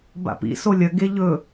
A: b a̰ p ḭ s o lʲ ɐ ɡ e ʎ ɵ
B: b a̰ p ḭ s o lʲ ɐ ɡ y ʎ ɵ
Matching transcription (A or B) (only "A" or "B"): A